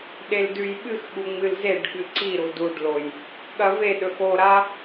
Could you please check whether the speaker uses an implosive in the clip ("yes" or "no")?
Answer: yes